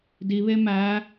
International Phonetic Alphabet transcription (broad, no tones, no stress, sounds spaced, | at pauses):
d i β e m æ